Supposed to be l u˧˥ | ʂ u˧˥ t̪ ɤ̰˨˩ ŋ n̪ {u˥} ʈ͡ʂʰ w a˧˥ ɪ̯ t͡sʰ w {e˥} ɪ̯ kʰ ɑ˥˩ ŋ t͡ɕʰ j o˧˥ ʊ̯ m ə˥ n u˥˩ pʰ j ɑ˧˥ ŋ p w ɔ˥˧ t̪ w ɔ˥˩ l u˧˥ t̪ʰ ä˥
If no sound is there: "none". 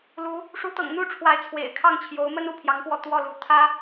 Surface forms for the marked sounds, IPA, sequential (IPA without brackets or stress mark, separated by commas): u˥, ḛ˨˩